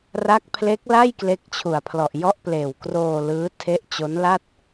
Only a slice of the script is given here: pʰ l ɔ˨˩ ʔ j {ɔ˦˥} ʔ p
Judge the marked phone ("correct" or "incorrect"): correct